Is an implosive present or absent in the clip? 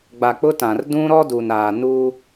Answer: absent